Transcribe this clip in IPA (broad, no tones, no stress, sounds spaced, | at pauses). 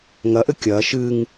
ŋ ɐ ʔ ɘ kʲ ɐː ʃ ɨ ŋ